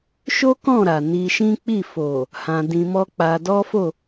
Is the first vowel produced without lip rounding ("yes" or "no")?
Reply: no